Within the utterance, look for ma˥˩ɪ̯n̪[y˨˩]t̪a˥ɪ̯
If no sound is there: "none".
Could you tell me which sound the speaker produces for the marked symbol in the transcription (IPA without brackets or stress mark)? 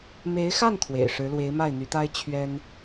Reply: y˧˥